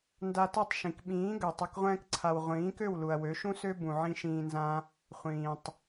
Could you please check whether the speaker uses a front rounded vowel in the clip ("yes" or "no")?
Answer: yes